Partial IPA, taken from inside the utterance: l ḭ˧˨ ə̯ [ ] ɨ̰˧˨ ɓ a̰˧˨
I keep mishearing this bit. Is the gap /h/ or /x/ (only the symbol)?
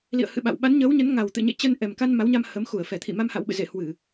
h